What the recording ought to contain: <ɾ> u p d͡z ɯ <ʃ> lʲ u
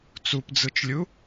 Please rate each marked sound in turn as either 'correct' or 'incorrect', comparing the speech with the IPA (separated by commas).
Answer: incorrect, incorrect